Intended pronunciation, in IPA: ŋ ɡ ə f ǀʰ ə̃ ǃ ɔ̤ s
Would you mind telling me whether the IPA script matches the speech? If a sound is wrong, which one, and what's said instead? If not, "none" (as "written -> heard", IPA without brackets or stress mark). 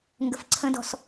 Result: ǃ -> d